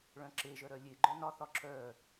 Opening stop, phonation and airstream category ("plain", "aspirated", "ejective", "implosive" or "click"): click